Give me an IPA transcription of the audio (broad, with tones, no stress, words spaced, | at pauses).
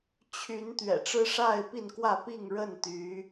t͡ɕʰy˨˦n t̪ɥɛ̰˨˩ʈ͡ʂɻ̩˦ ʂa˥˨ɪ̯pi˥˨nkwä˥˨ pi˥˨ŋɻə˥˨nt̪y˨˦